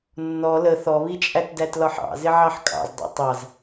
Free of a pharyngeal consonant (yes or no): no